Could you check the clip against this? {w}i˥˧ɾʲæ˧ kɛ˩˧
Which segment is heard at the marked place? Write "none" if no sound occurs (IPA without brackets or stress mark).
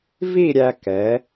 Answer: v